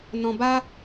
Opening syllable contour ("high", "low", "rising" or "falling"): low